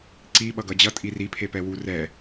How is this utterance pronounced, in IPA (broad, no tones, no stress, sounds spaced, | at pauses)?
ǀ i ɓ ʌ ɡ ʌ d͡ʑ ʌ tʼ i r i pʰ e p ɛ w u r ɛ